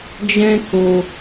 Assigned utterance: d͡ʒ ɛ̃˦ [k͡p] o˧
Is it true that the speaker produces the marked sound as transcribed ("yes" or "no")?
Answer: no